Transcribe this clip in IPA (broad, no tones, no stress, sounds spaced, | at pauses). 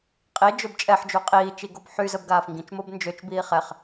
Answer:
qʼ i d͡ʒ ø b t͡ʃʼ ɛ ħ d͡ʒ u qʼ iː t͡ʃ i ɡ o b ħ y z ə b ɡ aː f ŋ ɡ ĩ t͡ʃ m o b n d͡ʒ ø t͡ʃ b iː χ ɛ χ